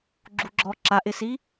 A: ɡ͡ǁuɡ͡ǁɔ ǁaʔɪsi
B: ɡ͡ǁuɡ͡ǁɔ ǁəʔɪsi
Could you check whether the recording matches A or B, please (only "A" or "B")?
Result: A